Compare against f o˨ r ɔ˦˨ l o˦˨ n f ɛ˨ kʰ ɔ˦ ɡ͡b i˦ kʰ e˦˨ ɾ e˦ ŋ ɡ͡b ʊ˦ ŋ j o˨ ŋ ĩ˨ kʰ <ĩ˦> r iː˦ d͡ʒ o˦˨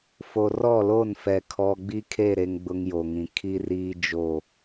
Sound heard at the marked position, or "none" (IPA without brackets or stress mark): i˦